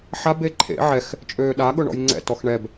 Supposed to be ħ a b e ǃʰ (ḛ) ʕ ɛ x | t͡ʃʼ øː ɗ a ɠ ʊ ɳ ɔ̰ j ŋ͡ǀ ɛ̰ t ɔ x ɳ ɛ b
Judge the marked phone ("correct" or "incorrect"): correct